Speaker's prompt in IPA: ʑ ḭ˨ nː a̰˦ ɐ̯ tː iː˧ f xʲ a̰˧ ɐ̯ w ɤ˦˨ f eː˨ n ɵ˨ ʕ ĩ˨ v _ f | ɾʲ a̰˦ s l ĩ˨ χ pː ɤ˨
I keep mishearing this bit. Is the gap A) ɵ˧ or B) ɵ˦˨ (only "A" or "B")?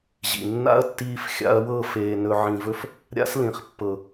A